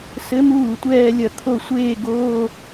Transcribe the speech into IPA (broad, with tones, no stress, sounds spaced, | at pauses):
s ɘ˧˥ m uː˥˩ tʷ ɛː˥˧ lʲ ɐ˥˩ t̪ʰ o˥˧ sʷ eː˥˧ ɡ oː˧˥˧